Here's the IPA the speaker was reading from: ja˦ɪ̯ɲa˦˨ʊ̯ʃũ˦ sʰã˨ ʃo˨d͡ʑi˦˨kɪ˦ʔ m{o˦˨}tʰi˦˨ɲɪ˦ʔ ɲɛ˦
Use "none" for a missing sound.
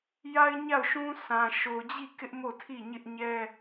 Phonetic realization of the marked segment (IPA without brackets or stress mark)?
o˦˨